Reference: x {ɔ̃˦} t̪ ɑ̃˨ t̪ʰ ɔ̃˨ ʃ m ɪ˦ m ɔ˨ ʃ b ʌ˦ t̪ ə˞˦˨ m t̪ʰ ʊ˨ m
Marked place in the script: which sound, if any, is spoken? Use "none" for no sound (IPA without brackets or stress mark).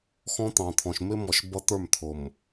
ɔ̃˦